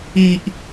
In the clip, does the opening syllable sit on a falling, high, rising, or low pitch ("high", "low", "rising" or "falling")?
high